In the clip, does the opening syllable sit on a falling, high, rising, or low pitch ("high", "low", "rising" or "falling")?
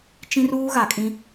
high